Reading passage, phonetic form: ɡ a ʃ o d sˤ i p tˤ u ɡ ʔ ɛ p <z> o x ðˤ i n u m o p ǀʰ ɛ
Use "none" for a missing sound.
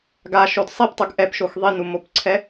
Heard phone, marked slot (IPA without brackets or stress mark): ʃ